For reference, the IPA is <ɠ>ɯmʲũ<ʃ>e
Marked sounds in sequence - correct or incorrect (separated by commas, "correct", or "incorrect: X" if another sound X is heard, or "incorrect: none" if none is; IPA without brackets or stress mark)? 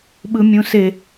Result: incorrect: ɓ, incorrect: s